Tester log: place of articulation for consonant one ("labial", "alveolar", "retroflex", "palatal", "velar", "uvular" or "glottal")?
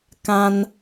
velar